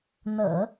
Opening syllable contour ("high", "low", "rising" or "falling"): low